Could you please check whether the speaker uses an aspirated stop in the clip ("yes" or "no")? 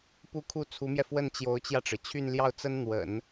yes